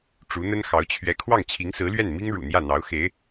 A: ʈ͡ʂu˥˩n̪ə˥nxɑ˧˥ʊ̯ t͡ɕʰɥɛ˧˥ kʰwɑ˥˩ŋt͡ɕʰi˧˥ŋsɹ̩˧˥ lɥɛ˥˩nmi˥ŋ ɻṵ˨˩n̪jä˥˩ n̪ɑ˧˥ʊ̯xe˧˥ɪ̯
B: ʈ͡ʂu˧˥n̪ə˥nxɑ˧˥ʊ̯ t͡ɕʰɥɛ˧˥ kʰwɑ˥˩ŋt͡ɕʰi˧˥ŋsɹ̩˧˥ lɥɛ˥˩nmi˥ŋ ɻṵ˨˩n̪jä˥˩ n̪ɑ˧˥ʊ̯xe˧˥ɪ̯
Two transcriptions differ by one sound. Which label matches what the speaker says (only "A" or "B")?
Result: B